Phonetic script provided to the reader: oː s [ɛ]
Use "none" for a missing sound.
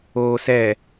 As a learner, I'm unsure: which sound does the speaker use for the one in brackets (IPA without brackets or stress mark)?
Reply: ɛ